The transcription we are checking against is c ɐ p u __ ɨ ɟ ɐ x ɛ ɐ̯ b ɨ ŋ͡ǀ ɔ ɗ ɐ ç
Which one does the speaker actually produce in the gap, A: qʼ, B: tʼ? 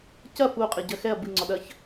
A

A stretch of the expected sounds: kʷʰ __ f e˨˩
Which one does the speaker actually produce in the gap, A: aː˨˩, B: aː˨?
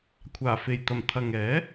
A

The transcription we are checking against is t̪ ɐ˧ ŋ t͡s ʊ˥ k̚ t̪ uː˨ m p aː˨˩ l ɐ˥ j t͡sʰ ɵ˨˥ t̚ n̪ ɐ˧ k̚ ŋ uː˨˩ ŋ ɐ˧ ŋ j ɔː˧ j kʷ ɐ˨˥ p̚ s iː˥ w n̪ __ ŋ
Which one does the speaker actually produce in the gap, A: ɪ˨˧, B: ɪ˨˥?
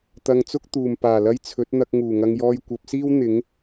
B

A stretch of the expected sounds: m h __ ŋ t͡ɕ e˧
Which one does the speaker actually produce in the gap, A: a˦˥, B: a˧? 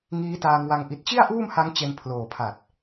A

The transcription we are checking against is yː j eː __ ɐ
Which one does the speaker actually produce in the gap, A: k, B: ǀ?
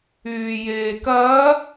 A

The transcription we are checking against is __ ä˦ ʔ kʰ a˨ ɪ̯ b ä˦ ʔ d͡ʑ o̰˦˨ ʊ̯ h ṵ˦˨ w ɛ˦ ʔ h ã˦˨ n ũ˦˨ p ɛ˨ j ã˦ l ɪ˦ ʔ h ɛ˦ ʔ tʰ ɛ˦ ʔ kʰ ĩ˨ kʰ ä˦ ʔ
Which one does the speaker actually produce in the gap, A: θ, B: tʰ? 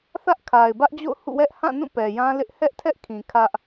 A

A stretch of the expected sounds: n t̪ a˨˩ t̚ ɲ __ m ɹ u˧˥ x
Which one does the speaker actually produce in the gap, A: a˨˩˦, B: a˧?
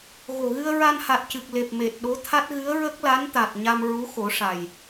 B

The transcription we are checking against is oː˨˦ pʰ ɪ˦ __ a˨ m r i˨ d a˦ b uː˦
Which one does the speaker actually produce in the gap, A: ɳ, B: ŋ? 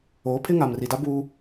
B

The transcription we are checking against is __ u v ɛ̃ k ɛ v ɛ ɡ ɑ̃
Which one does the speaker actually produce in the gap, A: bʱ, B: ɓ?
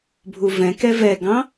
A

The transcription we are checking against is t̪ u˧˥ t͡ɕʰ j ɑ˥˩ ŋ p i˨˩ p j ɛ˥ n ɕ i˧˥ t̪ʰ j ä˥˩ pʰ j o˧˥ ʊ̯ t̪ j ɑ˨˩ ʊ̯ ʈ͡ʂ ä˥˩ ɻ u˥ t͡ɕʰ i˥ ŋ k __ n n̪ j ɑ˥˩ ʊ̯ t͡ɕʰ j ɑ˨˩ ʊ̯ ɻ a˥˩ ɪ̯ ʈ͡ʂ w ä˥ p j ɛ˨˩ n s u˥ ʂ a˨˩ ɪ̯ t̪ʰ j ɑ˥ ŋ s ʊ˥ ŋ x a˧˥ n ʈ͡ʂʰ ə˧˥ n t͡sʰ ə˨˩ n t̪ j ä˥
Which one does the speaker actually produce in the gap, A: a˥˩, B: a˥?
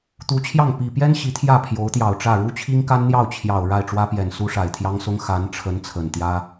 B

